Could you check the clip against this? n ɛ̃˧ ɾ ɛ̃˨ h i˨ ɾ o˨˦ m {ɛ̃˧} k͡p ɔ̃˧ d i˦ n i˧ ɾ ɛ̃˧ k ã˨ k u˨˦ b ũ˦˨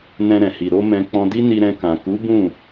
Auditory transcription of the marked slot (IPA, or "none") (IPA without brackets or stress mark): ɛ̃˧